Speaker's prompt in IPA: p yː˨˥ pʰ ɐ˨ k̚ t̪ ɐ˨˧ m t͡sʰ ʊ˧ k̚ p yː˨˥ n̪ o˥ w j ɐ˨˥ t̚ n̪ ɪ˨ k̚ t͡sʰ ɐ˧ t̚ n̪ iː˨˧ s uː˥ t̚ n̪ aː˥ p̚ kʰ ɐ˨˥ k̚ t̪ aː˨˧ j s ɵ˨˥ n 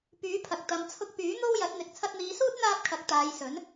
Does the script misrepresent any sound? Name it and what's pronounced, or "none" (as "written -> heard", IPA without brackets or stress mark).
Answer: none